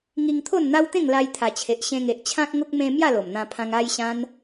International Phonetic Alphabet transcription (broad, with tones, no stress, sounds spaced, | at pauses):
ŋ i˧ ŋ t̪ʰ o˥˧ n n̪ a˦ w t̪ ẽ˥˧ ŋ l a˧ j t̪ʰ a˨˩ t͡ɕʰ e˨ ʔ ɕ ẽ˧ ŋ e˨ ʔ t͡ɕʰ ã˦ k̚ ŋ o˦ k̚ m ẽ˦ m j a˥˧ l o˨˩ m n̪ ã˧ pʰ ã˧ ŋ a˧ j ɕ ã˧ n